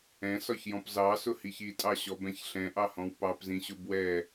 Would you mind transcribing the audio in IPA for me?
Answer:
ɛ̃ s ɒ ç j ɔ̃ p z ɑ s ʊ h i ç i tʼ ɑ ɕ ɔ b ɛ̃ ç ɬ ɛ̃ ʔ ɑ h ɔ̃ w p ɑ p z ĩ ɕ ʊ b w ɛ

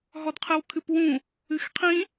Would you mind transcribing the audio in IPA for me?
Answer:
ɦ ɔ d qʰ ɨ w kʰ ɨ p w ũ | ɨ x qʰ ĩ

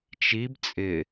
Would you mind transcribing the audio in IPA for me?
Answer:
t͡ʃ i b t͡sʼ ɪ

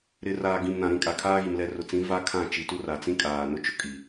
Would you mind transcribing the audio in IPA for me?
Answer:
ɾ ɪ˨ r aː˨ ɡ ĩ˨ m n ã˨ ɾ ĩ˦˨ kʼ a˨ kʰ aː˦ ɣ i˨ m l ɛ˨ r ʊ˨ t͡s ĩ˨˦ v a˦ kʰ ã˦˨ t͡ʃ i˨ t u˦ r a˨ t͡s ĩ˦ kʼ aː˨ n ʊ˦ t͡ʃ ʊ˦ kʼ i˨

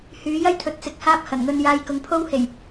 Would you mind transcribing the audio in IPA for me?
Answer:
h yː˨˥ j ɐ˥ j t̪ʰ ɵ˨ t̚ t͡s ɪ˨˥ k̚ h aː˧ p̚ h ɐ˨˩ n ŋ ɵ˧ n j aː˧ j k ʊ˨ ŋ pʰ o˥ w h e˨˩ j

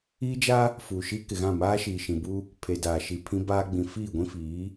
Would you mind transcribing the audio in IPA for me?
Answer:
iː˦ d͡ʒ a˦ | f uː˨ ʃ i˦ k ɪ˨ ɣ ã˦˨ m aː˦ ʃ iː˨ ʃ ĩ˨ b u˦ | pʰ e˨ d aː˨ ʃ i˨ pʰ ĩ˦ b aː˦ ɡ͡b ĩ˨ f iː˦˨ ɡʷ ĩ˦ f iː˨˦

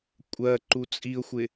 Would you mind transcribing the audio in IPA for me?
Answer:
kʷʼ ɜ ǃ u t͡sʼ i ʊ̯ xʷ ɪ

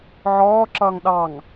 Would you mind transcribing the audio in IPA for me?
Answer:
ʕ ɔː ǁ ʌː ŋ ɗ ɑ ŋ

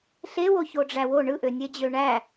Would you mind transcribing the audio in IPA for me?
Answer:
ɬ e w o ç o ɖ͡ʐ æ w o ɳ ɯ ʔ ø nʲ e d͡ʑ ø ɳ æ

